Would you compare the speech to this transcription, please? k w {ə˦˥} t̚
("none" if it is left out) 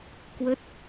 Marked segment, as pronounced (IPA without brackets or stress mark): ə˦˥